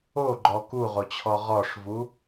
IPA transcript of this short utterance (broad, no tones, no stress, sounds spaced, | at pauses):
o ɡ͡ǃ ɔ k u ʁ o t͡ɕʰ ɔ ʁ ɔ ʂ v u